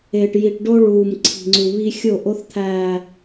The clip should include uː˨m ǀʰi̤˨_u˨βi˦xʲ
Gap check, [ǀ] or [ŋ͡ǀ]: ŋ͡ǀ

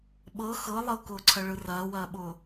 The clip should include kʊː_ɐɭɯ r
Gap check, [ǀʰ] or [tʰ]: ǀʰ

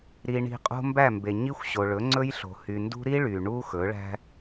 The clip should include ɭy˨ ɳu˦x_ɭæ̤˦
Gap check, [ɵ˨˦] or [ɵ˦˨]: ɵ˨˦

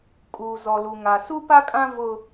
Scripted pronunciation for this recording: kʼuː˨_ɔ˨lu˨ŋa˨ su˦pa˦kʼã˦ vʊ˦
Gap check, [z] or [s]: z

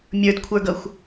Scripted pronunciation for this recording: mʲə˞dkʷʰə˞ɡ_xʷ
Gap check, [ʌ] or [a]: ʌ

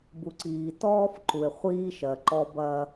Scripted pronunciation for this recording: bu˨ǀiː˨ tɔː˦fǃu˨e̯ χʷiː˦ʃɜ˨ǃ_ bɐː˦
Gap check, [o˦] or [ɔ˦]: ɔ˦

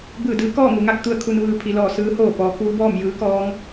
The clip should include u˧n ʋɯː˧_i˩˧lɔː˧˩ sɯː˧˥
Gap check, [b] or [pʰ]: pʰ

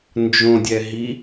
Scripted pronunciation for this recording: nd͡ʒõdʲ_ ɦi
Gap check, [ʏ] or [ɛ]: ɛ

